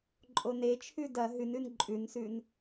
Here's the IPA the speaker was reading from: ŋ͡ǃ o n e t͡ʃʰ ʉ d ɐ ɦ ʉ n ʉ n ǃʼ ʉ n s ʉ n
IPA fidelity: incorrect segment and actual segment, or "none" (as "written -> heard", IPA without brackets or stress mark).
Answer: ŋ͡ǃ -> ǃʼ